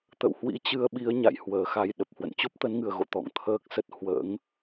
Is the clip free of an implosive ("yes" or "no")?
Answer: no